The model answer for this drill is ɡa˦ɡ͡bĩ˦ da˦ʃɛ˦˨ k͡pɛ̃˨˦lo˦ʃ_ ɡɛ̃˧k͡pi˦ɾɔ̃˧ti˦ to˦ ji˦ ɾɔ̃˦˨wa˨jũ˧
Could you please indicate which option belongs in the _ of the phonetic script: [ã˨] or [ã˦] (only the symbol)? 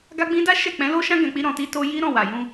ã˦